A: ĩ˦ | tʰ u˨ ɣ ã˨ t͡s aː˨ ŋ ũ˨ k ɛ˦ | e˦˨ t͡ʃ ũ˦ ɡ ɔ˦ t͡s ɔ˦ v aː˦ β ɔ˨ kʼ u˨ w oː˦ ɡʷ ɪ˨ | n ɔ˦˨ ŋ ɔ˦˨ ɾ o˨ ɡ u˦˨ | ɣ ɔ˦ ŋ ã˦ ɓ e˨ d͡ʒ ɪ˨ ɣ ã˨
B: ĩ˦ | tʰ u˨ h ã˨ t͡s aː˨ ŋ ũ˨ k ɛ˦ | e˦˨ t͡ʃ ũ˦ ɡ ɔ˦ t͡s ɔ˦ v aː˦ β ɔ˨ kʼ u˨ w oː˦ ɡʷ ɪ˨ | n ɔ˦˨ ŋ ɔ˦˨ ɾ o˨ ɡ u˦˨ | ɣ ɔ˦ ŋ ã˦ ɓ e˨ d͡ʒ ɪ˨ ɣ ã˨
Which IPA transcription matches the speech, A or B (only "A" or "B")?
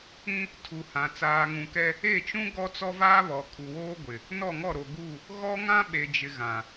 B